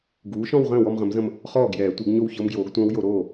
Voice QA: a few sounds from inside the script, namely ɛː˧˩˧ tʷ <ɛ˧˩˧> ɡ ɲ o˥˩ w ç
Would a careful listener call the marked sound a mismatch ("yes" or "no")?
yes